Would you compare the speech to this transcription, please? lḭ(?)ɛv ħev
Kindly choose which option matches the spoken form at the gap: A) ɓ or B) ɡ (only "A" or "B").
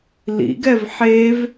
B